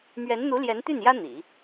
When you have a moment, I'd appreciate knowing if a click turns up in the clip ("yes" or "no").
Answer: no